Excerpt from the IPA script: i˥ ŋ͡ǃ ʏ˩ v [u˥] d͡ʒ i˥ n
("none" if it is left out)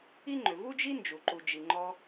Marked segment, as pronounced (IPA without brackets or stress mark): u˥